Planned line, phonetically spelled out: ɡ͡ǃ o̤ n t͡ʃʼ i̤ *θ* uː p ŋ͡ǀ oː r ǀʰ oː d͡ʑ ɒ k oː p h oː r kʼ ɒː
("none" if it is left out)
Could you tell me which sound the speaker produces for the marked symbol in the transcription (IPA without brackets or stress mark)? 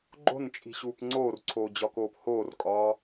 ɕ